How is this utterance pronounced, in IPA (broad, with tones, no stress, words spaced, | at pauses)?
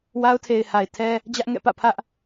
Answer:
wa˦ʊ̯tʰe˨ɪ̯ha˨ɪ̯ tʰɛ˦ | d͡ʑä˦ʔŋɛ̰˦˨pä̰˦˨ pʰä˦ʔ